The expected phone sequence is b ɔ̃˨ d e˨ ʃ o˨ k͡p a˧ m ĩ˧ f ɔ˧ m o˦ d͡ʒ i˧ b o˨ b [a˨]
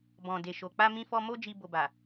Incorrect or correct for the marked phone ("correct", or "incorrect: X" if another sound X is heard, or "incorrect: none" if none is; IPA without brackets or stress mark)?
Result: correct